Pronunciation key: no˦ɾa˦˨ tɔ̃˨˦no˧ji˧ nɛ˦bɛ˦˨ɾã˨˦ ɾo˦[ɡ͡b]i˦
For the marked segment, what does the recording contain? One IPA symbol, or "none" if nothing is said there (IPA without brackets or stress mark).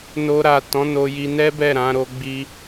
ɡ͡b